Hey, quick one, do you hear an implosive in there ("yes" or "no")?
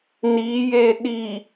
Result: yes